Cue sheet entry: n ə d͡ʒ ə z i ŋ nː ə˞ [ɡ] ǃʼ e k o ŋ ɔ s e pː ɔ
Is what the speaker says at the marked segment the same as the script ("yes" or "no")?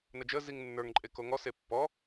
no